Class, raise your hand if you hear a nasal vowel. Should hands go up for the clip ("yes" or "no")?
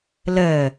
no